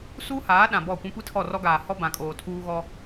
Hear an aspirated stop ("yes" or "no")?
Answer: yes